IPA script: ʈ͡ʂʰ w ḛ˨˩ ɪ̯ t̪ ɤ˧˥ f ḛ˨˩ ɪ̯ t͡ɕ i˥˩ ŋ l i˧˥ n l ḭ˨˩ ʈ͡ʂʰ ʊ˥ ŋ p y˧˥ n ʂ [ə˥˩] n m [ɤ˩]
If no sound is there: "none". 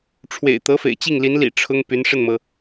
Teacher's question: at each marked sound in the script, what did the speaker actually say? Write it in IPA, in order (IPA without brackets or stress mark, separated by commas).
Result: ə˥˩, ɤ˩